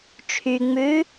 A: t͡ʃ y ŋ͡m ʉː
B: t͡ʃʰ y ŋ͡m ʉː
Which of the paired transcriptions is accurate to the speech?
B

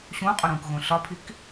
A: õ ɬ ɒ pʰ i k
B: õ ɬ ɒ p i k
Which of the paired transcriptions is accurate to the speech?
A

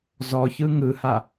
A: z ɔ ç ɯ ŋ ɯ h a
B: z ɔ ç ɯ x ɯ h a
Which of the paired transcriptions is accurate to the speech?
A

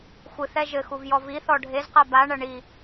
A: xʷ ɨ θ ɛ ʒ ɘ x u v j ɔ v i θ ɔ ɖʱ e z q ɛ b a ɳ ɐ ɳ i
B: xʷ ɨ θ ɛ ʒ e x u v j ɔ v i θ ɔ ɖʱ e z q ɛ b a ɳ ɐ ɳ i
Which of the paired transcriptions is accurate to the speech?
A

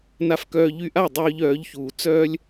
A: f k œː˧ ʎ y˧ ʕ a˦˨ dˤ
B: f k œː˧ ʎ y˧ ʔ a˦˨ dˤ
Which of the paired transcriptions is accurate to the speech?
B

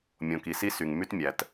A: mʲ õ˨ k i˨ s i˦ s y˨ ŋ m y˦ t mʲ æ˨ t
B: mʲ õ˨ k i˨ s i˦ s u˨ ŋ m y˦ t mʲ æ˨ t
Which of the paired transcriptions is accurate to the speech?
A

